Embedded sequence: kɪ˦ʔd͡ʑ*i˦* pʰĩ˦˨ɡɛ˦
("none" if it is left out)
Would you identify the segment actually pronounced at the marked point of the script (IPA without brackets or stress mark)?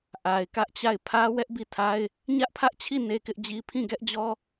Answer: i˦